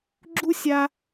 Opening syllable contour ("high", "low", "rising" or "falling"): high